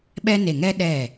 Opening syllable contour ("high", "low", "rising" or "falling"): high